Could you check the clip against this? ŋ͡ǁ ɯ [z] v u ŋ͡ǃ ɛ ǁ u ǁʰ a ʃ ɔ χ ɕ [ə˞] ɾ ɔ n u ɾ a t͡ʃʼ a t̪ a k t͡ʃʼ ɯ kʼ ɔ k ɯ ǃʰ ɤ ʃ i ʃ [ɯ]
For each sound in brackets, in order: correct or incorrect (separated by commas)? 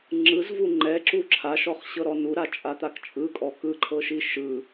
correct, incorrect, correct